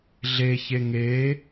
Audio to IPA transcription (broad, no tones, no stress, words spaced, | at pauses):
ɮeçe ŋe